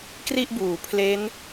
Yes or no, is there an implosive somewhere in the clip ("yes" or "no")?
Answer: no